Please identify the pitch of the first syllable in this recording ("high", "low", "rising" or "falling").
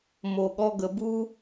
low